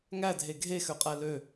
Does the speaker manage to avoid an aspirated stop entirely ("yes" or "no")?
yes